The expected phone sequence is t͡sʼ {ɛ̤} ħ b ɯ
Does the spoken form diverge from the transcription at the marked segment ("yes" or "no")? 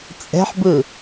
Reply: no